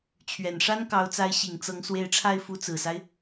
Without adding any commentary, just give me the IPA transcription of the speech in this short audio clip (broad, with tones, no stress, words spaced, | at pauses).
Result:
t͡ɕʰɥɛ˨˩nʂa˥nkɑ˧˥ʊ̯t͡sa˧˥ɪ̯ ɕi˨˩ŋt͡sɤ˧˥ŋ swe˧˥ɪ̯ʈ͡ʂʰa˥˩ɪ̯ fu˧˥t͡sɹ̩˨˩sa˦ɪ̯